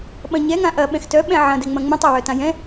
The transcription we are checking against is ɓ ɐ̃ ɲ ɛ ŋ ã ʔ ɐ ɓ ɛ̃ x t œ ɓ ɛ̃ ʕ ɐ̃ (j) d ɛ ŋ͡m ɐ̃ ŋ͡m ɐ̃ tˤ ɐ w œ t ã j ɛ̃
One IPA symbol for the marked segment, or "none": none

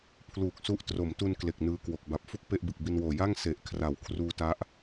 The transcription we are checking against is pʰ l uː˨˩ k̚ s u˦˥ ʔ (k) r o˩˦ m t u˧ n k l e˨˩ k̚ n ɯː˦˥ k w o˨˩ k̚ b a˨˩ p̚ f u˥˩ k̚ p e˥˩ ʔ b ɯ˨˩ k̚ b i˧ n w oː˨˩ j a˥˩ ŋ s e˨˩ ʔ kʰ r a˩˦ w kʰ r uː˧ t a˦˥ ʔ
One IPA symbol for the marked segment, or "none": t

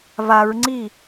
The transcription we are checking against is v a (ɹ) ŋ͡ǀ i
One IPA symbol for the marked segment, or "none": ɹ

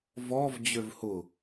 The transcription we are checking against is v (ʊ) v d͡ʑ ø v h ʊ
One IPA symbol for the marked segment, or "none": ɔ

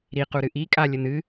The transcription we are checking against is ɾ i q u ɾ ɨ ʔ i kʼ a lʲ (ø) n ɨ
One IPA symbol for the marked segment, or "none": ə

